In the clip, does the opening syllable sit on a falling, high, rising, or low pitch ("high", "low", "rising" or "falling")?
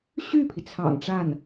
falling